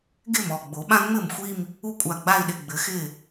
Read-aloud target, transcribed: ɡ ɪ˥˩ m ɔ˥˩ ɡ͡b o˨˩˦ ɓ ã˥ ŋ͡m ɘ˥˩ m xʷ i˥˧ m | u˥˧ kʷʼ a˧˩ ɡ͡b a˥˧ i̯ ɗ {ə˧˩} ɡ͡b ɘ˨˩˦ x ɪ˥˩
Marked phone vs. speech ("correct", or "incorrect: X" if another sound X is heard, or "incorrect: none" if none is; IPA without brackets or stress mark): incorrect: ɪ˧˩